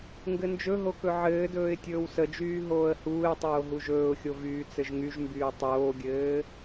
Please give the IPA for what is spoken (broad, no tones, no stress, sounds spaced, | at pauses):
ŋ ɡ ɘ n d͡ʒ ɵ ɦ o k ɵ ʕ ɘː d ɵː ɪ̯ tʲ ɵː w s ə d͡ʒ yː ɦ oː ə̯ h uː ɪ̯ tˤ oː ɦ u ʒ ɵː ʊ̯ xʲ o v yː t͡s ɘ ʒ ŋ y ʒ m b yː tˤ oː ɡʲ ɘː